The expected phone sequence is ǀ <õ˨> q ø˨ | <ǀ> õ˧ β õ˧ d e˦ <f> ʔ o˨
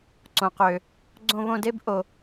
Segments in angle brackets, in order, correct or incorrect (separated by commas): correct, incorrect, incorrect